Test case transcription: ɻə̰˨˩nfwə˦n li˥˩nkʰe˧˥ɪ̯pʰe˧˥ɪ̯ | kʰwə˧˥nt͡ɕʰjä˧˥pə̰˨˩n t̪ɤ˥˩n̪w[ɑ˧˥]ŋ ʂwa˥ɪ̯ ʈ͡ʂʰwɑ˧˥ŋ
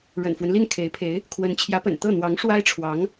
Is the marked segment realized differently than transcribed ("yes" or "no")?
no